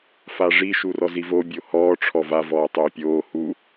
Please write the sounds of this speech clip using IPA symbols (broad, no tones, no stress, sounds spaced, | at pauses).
f a ʐ i ʃ u r ɔ z i v o bʲ o h ɔː ʈ͡ʂʰ ɔ v a v ɔː tˤ oː pʲ oː h u